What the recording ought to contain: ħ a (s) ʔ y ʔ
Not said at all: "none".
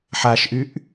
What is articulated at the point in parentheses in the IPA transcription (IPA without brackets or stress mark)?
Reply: ʃ